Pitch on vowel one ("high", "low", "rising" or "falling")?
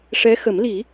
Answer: rising